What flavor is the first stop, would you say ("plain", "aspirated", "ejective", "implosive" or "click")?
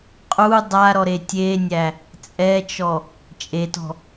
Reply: ejective